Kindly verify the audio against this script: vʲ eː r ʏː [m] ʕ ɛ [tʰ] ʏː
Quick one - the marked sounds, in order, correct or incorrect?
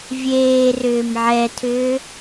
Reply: correct, correct

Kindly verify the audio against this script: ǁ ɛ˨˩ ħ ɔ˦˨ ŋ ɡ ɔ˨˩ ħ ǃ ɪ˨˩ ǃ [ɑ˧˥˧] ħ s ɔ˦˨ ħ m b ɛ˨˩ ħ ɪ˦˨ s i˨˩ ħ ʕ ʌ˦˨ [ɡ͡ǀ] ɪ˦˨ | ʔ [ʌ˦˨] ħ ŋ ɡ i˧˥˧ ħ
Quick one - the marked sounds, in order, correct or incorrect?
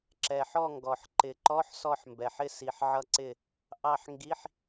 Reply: incorrect, incorrect, incorrect

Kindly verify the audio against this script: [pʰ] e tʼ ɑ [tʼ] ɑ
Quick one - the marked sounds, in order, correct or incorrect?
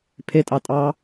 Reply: correct, correct

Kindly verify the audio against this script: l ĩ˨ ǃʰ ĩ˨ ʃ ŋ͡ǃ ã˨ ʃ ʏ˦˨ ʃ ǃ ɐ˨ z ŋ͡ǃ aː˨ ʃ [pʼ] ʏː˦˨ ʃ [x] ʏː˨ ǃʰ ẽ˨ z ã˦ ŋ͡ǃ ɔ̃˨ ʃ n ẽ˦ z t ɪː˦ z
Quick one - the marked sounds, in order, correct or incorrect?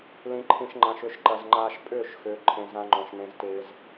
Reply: correct, correct

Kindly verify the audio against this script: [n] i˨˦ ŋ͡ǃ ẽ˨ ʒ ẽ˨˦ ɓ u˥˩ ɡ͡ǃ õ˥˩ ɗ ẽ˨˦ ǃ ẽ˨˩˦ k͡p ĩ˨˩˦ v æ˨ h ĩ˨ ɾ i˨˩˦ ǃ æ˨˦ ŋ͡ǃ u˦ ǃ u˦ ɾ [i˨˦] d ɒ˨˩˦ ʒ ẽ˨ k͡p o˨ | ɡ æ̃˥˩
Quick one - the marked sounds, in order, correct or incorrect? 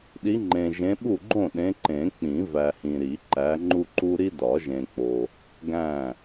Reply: incorrect, incorrect

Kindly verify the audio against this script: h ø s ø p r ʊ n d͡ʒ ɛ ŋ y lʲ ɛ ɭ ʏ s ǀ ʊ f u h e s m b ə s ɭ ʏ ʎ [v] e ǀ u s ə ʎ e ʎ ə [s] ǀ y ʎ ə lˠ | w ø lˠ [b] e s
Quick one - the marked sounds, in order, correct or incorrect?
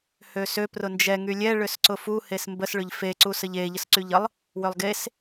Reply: incorrect, correct, incorrect

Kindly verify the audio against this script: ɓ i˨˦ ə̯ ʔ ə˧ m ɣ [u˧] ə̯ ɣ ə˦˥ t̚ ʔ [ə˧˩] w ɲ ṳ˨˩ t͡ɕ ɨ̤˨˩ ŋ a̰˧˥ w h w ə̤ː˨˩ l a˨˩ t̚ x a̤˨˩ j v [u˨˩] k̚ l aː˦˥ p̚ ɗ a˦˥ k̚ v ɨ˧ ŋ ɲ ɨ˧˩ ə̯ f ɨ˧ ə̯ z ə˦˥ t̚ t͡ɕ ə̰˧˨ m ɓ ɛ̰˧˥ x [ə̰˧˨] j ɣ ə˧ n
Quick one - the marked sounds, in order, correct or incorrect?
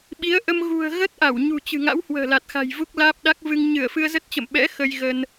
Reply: incorrect, incorrect, incorrect, incorrect

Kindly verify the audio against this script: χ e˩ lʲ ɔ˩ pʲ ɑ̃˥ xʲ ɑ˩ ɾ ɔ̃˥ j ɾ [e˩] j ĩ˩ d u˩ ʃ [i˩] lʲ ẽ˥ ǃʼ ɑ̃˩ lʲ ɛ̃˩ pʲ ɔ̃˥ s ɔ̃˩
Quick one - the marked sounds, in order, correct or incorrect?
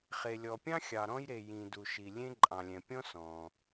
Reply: correct, correct

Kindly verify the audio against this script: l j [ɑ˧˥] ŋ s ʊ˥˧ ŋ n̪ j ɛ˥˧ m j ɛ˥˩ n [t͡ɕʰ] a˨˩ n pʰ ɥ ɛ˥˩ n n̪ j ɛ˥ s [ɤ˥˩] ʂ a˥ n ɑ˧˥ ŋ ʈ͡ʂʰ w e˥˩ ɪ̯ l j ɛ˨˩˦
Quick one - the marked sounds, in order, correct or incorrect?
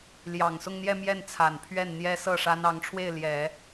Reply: incorrect, incorrect, correct

